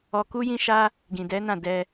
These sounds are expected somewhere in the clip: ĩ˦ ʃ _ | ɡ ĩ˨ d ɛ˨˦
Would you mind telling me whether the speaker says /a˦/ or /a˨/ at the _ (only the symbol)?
a˦